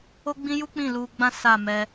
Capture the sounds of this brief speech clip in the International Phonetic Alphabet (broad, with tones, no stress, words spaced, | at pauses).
o˦ɡ͡bĩ˦ju˦k͡pĩ˦˨ lu˧ɡ͡bã˦ sa˦˨ mɛ˧